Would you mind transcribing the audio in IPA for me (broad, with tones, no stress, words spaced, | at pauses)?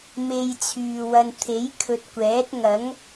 me˧jt͡sʰyː˨wɐ˧n t̪ʰe˨˥jkʰɵ˨t̚kʷɛː˨˥t̚ ŋɐ˨˥ŋ